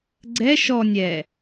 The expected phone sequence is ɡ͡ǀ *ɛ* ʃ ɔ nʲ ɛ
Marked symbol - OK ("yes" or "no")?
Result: yes